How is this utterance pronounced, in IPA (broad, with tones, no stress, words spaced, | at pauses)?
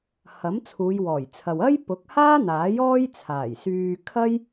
hɐ˨˥mt͡sʰuː˨˧jwɔː˨˩jt͡sʰɐ˨w ɐ˥j pʊ˨˥k̚haː˥n̪aː˨˥j ɔː˥jt͡sʰaː˨˩jsyː˧ kʰɐ˥j